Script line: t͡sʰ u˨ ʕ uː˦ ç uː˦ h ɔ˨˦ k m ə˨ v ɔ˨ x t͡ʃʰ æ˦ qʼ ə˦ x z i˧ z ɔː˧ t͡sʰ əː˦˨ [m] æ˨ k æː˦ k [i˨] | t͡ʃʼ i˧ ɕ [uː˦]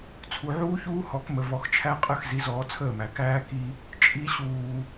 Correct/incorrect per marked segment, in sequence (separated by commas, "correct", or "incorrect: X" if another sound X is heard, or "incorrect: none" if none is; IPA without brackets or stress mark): correct, incorrect: i˧, incorrect: uː˨